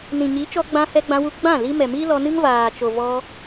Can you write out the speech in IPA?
n ĩ˨ ɲ i˨˦ t͡ʃ ɔ˧ ɡ͡b ã˧ h ɛ˧ ɡ͡b ã˧ w u˧ ɡ͡b ã˦˨ l i˧ m ɛ˨ m i˦ l ɔ˧ n ɨ˦ ŋ v aː˨ t͡ʃ o˨ v ɔ˧

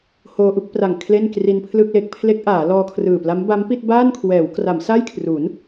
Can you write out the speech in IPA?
h oː˧ ʔ u˥˩ k̚ p r a˨˩ ŋ kʰ l e˥˩ n k r i˧ n pʰ l ɯ˥˩ k̚ l e˦˥ k̚ pʰ l e˦˥ k̚ ʔ aː˩˦ l ɔː˧ kʰ r ɯː˨˩ p l a˦˥ m b a˦˥ m p i˥˩ t̚ b aː˥˩ n kʰ w ɛː˩˦ w k r a˩˦ m s a˥˩ j kʰ r u˩˦ n

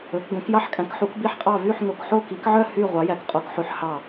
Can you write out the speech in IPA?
ɵ˨˦ k ɡ õ˨˦ k j ɑ˦˨ ħ kʼ æ̃˨˦ k ħ u˨˦ k b i˦˨ ħ qʼ ɑ˦˨ v y˦˨ ħ ŋ o˨˦ k ħ o˦˨ k i˨˦ k ʕ œ˦˨ h y˦˨ ʁʷ ɑ˨˦ j æ˨˦ k qʼ o˨˦ k ħ ʉ˨˦ ħ h ɑ˦˨

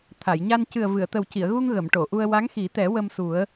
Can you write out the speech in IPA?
t̪ʰ a˨˩˨ j ɲ a˧ n c ɨ˨˩ ə̯ v ɨ˨˩˨ ə̯ t̪ ə˨˩ w c i˨˩˨ ə̯ ɣ u˧ ŋ ɣ ə˨˩˨ m ʈ o˨˩˨ ʔ u˧ ə̯ w a˧˥ ŋ x i˨˩˦ t̪ ɛ˨˩˦ w ə˧ m s u˨˩˦ ə̯

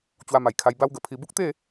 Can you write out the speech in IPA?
t͡ɕ w a˧ m a˨˩ j kʰ a˧ j b a˦ w ɡ ə˨˩ pʰ i˧ b u˦ k̚ t̪ e˥˧

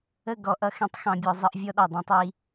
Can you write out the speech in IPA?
ə˦˨ ɡ ɔ˨ ʔ ʌ˦ x ɛ̃˦ tˤ x ɑ̃˦ bʲ ɔ˦ zˤ ʌ˦ ʔ vʲ ɔ˦ ɗ ɑ˨ dˤ ɑ̃˦ tˤ i˨˦

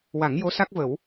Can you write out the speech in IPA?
w a˨˩˦ ŋ j o˧˥ s a˦˥ k̚ v ə˨˩˦ w

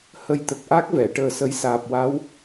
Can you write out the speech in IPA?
h ə˧ j t̪ ə˨˩ k̚ ʔ a˦˥ k̚ v ɛ˨˩˨ ʈ əː˨˩ s ə˨˩˦ j s aː˨˩ p̚ w a˧˥ w

